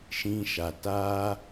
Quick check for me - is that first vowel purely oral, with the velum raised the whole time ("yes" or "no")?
no